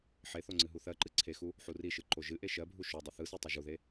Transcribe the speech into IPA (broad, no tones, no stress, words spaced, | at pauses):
ħeθo ŋ͡ǀɨɦuθɜǃɨ ǀʰexu | ħuriʃɯ ǃoʒɨʔe ʃɜbʱu ʃodˤʊ θɯse tˤoʒuðe